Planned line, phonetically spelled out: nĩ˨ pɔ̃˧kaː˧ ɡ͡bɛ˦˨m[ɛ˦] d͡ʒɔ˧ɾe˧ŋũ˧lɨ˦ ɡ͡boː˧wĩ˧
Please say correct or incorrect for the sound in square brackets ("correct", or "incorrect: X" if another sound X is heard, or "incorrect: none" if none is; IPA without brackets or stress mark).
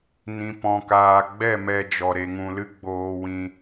incorrect: ɛ˧